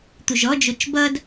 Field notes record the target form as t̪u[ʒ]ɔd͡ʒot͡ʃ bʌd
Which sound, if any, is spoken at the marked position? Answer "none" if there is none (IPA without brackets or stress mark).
ʒ